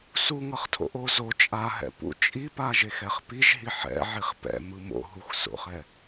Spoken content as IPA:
s u ŋ ʌ χ tʰ o̰ ʔ o z o t͡ʃʼ a ɦ ɛ̰ p ṵ t͡ʃʼ i p a ʒ e x ɛ χ p i ʒ ɦ i ħ ɛ̰ ʕ i χ p ɛ̰ m ɯ m o̰ ɦ u x s o̰ χ ɛ

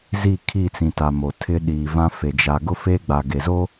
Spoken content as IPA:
z i˦˨ kʰ i˦˨ t͡s ĩ˨ t a˨ m o˨ tʰ ɪ˦ ɗ iː˨ v ã˦ f e˨ d͡ʒ a˨ ɡ ʊ˦ f eː˦ ɡ͡b a˨ ɡ e˨ z o˦

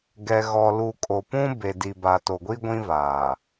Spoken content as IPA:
ɡ ɛ˨ ɣ ɔ˨ l u˨ kʼ o˨ p ũ˦ b e˨ d i˨ b a˨ t o˨ ɡʷ i˦ ɡʷ ĩ˦ v aː˨

